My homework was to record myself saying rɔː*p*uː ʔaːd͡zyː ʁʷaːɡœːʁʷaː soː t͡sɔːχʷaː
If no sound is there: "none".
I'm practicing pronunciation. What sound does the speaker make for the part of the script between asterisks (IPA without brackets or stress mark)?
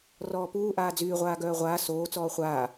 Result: p